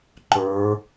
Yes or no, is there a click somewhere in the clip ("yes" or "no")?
yes